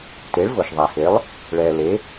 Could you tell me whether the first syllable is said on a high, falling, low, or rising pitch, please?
rising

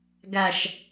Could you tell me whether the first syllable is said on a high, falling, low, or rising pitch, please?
low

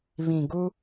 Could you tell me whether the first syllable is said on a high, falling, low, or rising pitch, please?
low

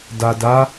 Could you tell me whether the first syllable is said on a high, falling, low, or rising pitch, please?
low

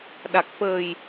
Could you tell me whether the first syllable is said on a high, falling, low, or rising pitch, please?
low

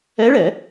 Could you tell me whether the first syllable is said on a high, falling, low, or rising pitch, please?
rising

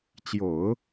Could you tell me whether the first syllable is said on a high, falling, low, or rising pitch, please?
low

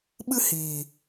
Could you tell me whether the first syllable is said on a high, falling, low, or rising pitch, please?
high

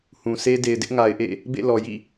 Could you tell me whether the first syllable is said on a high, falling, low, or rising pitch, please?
low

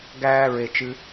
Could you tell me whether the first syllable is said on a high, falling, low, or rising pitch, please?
high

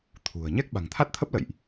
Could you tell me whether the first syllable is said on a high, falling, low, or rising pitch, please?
low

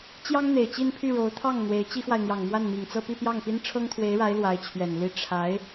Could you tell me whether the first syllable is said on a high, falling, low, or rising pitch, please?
high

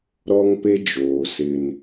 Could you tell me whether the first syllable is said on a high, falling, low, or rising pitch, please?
high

